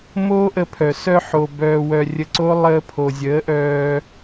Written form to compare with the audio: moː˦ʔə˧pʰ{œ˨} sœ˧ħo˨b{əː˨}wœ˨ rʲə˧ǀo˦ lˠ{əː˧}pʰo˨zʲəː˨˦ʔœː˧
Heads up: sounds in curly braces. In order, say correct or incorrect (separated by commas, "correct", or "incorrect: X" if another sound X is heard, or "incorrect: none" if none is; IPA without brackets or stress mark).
correct, incorrect: œː˨, correct